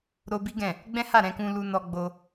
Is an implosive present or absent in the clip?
absent